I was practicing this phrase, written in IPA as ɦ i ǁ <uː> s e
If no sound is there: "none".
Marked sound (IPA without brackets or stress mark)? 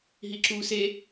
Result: uː